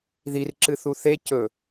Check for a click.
present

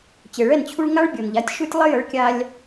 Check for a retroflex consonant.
present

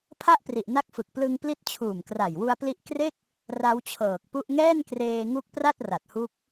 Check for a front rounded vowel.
absent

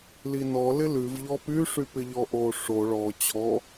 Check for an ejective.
absent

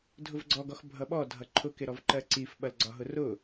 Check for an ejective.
absent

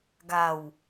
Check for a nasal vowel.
absent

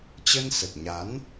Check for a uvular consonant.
absent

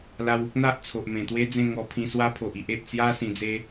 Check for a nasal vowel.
present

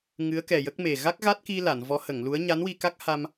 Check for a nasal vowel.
absent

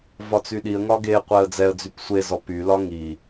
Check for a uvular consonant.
present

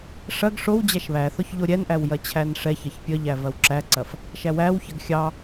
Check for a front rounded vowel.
absent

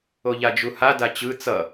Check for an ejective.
absent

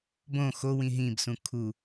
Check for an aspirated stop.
present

